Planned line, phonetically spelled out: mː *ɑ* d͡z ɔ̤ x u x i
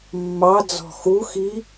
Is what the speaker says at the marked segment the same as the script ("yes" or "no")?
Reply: yes